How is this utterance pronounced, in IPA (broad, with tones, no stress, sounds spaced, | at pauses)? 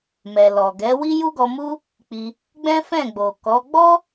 m ɛ˨ l ɔ˨ ɡ ɛ˨˦ w i˦ j u˦ ɡ ɔ˧ m u˦ | k͡p i˧ | ɡ͡b ɛ̃˦ f ɛ̃˦˨ ɡ͡b o˨ k ɔ˨˦ ɡ͡b ɔ˦